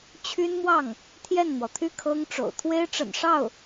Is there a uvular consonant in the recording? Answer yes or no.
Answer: no